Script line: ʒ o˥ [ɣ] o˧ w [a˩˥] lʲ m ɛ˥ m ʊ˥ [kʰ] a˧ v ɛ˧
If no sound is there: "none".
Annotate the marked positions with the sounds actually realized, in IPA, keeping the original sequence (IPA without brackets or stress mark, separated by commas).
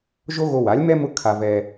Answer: ɣ, a˩˥, kʰ